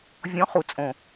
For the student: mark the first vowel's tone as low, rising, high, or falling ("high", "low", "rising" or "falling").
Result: rising